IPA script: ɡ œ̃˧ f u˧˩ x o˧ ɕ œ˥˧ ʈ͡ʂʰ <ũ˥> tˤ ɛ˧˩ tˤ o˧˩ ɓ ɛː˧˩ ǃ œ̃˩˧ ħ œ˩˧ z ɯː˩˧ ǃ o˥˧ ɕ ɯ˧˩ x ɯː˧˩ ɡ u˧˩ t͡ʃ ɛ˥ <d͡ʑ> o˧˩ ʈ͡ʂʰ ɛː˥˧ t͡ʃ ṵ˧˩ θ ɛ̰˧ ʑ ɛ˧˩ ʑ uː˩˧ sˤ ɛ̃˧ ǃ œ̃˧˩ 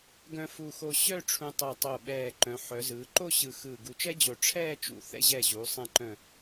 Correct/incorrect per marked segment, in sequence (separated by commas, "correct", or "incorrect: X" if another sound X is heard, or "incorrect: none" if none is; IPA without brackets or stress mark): incorrect: ũ˧, correct